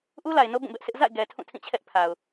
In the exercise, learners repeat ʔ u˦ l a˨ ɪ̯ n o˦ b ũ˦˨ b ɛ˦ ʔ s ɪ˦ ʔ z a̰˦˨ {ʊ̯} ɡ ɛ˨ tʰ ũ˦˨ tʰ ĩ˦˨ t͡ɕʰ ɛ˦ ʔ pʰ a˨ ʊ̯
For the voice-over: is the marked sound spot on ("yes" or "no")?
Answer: no